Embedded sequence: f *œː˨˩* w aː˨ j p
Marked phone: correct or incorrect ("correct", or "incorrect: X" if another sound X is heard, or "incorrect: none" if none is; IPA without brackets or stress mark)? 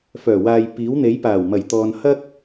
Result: correct